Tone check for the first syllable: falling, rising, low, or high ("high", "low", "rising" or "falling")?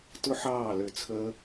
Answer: high